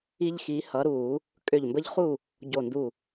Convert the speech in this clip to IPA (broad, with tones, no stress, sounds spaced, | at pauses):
i˦ ʎ x i˨˦ h ʌː˨˦ ɾ u˧˩˧ | kʼ ʏː˧˩ ʎ m b ə˦ ʎ χ u˥˨ | ɟ o˧˩ n d u˧˩